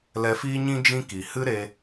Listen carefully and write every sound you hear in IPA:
lɛ˧fiː˦ɲĩ˦ d͡ʒĩ˦ki˨ hɨ˦ɾe˧

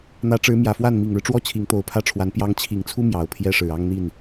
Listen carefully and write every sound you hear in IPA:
n̪ä˧˥ʈ͡ʂɻ̩˧˥mjä˨˩fwa˥˩n mi˨˩ŋɻɻ̩˦ʈ͡ʂwɔ˥ t͡ɕʰi˧˥ŋt̪o˧˥ʊ̯pʰä˥ʈ͡ʂʰwa˧˥n pjɑ˧˥ŋt͡ɕʰi˨˩ŋt͡sʰu˥ mjɑ˨˩ʊ̯pʰjɛ˥ʂɻ̩˨˩ɑ˥ŋ n̪i˥˩n

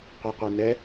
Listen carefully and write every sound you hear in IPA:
qʷɛqʷɛnɛ

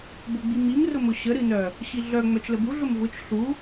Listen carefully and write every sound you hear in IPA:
bʊɡ͡bimim rʊmʊɕə ɾɨnœ | ɕiɮœ ŋ͡mœt͡ʃləbu ɮʊmvʊt͡ʃ ɬu

